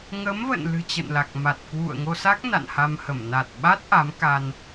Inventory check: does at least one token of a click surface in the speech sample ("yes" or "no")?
no